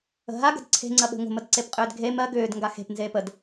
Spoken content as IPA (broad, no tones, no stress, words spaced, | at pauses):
ə̤ɦa ɡə̤dǀʰe̤ ŋ͡ǀɐɓe̤ŋʷə̤məd ǀepqʼʏːdɡʱe mɜ ɡʏːd ŋɡaxe̤pnzeːp əd